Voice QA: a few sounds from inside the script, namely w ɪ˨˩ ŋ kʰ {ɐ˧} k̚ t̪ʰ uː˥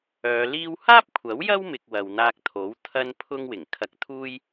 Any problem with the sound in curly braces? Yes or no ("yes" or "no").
no